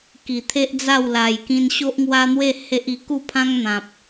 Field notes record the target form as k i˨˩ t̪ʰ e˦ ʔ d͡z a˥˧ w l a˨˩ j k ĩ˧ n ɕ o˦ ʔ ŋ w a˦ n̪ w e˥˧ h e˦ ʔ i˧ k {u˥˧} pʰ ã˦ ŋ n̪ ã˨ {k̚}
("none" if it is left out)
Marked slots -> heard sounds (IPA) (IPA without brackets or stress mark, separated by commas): u˥˧, p̚